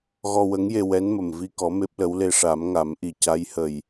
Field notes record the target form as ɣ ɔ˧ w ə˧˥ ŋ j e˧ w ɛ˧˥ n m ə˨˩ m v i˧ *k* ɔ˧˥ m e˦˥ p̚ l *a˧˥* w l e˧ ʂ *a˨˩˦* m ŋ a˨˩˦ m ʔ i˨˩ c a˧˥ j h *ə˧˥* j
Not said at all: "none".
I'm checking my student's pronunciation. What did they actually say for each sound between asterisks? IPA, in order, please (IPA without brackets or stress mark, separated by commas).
k, ə˧˥, a˨˩˦, ə˨˩